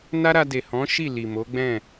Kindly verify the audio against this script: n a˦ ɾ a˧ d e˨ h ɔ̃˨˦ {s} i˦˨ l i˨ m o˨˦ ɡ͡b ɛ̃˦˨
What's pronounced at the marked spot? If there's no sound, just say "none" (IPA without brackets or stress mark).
ʃ